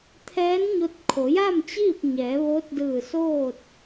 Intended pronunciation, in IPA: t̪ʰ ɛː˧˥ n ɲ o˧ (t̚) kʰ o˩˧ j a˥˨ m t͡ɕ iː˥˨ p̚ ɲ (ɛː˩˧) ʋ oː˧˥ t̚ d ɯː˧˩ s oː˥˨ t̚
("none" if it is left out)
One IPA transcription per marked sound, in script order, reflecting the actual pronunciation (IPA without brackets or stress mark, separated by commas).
t̚, ɛː˩˧